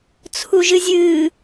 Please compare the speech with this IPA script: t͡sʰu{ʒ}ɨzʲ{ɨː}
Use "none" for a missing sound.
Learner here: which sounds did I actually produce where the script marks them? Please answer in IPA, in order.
ʒ, ɨː

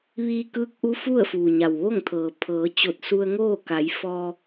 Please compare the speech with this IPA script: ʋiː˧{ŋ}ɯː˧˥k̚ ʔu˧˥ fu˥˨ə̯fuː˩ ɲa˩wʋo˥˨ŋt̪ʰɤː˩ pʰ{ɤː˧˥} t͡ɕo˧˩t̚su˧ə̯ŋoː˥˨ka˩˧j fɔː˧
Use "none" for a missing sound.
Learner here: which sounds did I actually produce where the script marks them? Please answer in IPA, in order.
k, ɤː˩˧

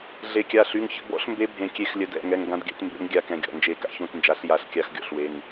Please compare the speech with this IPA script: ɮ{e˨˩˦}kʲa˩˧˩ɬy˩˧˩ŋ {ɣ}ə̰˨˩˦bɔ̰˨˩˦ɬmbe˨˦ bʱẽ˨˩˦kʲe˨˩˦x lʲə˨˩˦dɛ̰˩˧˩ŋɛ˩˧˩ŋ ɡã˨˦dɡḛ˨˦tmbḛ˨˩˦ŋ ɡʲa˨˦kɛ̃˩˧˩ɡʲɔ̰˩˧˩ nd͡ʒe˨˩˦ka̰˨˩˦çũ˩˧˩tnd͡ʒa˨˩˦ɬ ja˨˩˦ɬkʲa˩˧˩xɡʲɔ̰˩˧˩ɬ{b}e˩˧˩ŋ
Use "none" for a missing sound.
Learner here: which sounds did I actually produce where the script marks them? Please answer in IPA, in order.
e˨˩˦, ç, w

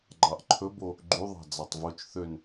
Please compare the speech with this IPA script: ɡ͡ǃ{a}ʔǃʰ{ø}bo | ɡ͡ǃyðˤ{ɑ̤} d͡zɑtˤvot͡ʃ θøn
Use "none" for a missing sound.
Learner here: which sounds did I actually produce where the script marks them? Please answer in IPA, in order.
ɑ, ɵ, ɑ̤

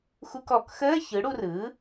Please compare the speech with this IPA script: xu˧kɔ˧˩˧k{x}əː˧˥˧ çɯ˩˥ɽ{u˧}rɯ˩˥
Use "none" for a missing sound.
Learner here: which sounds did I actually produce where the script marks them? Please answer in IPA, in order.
x, u˧

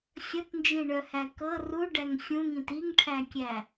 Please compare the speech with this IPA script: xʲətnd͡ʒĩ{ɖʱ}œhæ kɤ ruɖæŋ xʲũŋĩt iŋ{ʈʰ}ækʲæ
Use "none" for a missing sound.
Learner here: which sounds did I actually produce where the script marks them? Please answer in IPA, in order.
ɳ, ʈʰ

